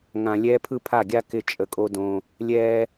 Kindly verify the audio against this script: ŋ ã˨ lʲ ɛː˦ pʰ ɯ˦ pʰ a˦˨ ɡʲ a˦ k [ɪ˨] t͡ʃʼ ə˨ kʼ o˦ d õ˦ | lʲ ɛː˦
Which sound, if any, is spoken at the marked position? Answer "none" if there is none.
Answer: ɪ˨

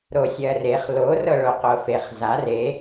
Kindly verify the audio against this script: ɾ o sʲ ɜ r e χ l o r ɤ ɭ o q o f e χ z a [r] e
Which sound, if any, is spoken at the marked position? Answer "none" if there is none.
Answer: r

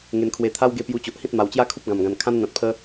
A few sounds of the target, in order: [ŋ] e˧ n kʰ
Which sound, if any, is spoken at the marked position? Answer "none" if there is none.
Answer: ŋ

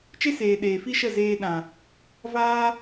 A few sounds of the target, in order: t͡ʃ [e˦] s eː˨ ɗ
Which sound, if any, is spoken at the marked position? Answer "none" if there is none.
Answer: e˦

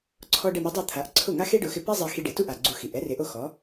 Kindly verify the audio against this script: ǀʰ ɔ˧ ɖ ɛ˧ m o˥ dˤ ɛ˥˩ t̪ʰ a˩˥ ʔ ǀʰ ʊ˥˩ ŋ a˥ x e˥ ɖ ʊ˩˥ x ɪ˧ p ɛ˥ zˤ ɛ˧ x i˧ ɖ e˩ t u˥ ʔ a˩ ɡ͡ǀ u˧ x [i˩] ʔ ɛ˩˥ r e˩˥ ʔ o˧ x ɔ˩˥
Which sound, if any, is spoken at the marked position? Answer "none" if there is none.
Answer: i˩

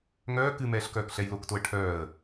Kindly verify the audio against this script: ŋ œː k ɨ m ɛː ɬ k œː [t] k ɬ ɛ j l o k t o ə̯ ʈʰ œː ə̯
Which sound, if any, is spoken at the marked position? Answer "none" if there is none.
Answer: none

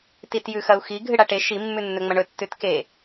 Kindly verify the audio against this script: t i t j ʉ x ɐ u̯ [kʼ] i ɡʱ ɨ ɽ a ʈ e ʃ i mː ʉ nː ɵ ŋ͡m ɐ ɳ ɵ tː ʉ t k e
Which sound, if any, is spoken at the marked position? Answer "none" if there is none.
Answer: x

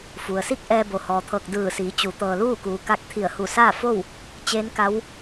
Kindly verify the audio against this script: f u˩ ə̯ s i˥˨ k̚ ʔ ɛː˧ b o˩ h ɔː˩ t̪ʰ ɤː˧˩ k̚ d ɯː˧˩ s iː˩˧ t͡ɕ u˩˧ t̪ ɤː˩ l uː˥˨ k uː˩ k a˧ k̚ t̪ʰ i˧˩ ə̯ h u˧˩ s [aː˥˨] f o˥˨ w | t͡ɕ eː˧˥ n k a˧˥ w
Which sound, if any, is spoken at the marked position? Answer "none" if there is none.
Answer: aː˥˨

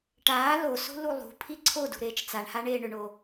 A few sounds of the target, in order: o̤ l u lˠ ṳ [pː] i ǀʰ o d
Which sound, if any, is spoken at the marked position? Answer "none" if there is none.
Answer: pʰ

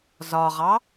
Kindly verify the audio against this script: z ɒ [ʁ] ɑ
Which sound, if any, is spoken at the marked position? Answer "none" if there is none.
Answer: ʁ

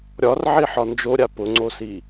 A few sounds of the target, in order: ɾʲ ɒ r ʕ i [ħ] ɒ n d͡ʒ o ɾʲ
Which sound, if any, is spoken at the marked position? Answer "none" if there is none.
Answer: ħ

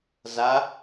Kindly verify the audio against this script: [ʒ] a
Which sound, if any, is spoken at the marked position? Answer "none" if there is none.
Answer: z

